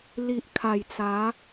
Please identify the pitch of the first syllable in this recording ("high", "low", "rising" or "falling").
low